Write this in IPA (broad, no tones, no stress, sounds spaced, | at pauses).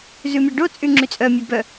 z ʉ mʲ ɑ ɖ o t͡sʼ y ŋ͡ǁ y t͡sʼ œ mʲ œ b œ